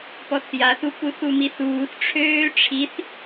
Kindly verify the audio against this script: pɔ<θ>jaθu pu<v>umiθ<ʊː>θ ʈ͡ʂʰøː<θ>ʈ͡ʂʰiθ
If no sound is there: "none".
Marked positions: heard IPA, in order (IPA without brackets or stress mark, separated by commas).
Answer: θ, θ, uː, none